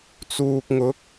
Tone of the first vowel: low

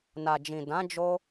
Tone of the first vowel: low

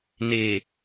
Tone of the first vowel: low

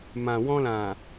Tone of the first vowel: low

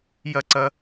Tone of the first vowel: falling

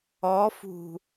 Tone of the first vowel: rising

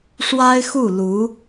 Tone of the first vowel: high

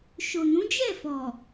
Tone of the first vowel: low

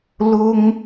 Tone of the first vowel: high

